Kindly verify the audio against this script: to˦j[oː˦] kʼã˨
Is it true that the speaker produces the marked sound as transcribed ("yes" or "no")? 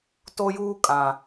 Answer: no